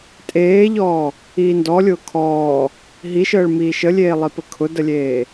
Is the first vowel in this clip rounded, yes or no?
no